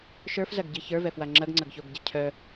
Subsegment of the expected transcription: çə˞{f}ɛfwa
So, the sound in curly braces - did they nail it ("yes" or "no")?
no